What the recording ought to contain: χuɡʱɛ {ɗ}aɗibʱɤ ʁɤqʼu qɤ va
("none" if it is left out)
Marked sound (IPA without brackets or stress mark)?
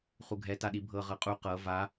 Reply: t